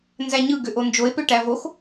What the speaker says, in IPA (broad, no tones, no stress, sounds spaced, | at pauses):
n z æ ɲ ɯ ɡ ø ʔ o n d͡ʒ o e̯ p ø ʈ æ v o x